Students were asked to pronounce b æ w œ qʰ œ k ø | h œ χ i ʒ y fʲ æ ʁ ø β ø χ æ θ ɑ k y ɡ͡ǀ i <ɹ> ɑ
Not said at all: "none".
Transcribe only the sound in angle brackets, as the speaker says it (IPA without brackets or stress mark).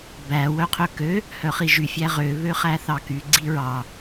ɹ